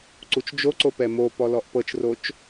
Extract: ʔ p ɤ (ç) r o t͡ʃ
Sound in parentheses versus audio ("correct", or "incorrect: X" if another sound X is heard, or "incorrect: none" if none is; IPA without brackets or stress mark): incorrect: t͡ʃ